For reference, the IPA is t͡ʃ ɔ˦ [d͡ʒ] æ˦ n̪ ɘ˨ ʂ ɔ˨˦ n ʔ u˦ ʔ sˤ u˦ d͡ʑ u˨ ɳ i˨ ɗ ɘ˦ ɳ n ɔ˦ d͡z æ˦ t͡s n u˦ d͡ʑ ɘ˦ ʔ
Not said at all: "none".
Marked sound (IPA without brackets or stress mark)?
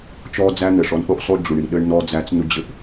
d͡z